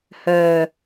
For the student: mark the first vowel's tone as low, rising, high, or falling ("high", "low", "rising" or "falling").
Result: low